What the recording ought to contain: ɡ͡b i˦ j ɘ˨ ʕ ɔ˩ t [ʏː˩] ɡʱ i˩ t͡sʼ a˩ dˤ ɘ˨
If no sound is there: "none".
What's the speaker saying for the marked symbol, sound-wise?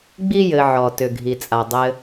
ʏ˩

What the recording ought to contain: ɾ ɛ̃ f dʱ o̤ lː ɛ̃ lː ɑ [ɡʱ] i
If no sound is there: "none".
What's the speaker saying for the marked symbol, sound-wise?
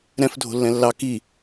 k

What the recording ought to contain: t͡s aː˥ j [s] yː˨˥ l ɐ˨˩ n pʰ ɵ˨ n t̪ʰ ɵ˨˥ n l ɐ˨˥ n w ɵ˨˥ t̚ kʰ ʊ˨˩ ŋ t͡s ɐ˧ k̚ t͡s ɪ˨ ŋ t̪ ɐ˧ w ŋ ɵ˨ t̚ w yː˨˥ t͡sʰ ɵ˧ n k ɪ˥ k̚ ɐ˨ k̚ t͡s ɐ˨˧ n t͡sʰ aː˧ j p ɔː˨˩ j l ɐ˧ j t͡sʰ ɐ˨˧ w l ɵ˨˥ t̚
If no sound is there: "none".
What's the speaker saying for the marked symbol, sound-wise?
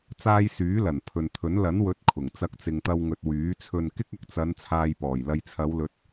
s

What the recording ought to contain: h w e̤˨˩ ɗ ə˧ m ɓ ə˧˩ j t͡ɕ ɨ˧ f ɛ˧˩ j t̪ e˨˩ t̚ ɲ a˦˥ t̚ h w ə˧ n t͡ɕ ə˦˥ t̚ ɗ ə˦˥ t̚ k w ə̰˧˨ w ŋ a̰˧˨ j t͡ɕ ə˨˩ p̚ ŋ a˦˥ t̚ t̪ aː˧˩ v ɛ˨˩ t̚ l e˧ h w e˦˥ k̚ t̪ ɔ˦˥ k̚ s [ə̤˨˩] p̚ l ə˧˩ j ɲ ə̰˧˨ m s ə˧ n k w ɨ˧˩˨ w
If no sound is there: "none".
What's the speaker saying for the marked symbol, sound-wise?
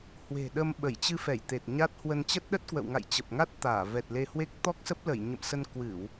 ə˦˥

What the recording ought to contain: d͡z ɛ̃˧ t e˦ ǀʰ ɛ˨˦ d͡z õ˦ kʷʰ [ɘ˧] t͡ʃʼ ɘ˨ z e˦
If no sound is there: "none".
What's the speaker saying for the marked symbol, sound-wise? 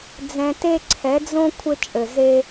ɘ˧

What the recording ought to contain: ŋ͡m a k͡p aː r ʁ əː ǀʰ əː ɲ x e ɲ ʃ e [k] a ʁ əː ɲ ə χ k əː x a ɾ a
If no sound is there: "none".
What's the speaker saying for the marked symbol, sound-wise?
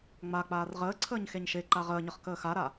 ǃ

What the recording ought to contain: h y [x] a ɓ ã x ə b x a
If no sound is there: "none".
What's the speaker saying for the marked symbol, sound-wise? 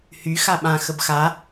x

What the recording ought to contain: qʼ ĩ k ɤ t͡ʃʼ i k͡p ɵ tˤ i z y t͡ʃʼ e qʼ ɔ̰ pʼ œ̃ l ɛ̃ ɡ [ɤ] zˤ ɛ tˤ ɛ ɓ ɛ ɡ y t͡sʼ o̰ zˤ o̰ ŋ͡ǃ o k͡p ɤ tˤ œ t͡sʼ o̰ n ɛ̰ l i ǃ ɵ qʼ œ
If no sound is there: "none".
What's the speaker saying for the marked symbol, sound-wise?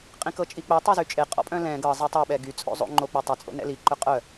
ɤ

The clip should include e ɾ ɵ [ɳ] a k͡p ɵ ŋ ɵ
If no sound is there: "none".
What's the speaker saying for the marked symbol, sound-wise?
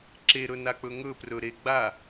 n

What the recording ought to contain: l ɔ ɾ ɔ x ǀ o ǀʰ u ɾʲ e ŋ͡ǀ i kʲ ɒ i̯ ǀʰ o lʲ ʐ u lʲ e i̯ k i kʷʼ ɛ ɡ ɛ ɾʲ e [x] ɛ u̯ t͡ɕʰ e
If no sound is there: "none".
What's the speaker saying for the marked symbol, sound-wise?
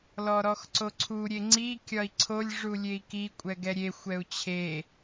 xʷ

